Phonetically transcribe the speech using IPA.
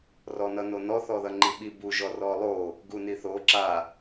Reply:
rɔnʌnonɔ θɔðʌŋ͡ǃiɓi bu ʒɔrɔlˠo | ɡuniθo ǁa

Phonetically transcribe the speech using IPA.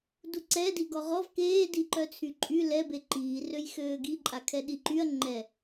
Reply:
duǀɛ diɡɔʁɔv keː diǃœt͡sʰyǃʼy lɛ beǃiː røjxøːɡi ǃʼakʰɛɗiǃyɐ̯ ŋ͡ǃɛ

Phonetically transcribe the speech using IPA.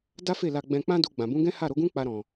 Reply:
da˦fe˦˨la˧ɡ͡bɛ̃˧ k͡pã˦du˧ ɡ͡bã˨bũ˨˦ɡɛ̃˦ha˦˨ ɾo˨˦ɡũ˦k͡pa˧ ɾɔ̃˨

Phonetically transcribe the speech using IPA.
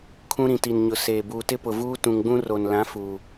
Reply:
kʰũ˦ ɾĩ˨ti˨nɲʊ˨ seː˨ buː˨tɪ˦pʊ˨vuː˦ tũ˨ŋɡ͡bũ˦ ro˨n lã˨˦ fuː˨

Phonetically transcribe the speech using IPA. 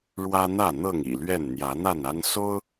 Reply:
ɻwä˦n̪ä˥˨n̪ɤ˥˨ŋ ḭ˨˩lɥɛ˥˨n n̪jä˨˦n̪a˥˨na˦n so˦ʊ̯

